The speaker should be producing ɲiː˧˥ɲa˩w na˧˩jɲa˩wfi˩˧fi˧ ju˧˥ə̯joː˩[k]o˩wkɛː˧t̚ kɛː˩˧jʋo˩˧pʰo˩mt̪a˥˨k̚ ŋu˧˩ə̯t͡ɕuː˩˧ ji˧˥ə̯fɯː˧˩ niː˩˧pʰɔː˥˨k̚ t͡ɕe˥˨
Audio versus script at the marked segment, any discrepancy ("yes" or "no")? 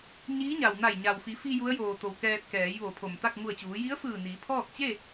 yes